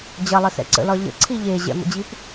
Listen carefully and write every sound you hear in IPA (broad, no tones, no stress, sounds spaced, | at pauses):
d͡ʑ ɐ lˠ ɘ s ɛ̰ ǀ ə̰ l ɒ ʎ ə̰ ǀʰ i ʎ e ʑ ɛ̰ m ə̰ d͡ʑ i p